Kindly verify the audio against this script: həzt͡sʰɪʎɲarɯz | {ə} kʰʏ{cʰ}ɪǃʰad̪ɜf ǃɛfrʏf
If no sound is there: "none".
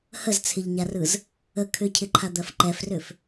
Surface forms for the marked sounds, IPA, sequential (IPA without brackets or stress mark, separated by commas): ə, cʰ